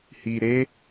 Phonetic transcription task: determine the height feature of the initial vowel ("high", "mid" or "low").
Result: high